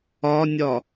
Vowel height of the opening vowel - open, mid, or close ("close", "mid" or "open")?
open